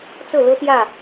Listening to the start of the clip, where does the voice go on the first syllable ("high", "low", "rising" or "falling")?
falling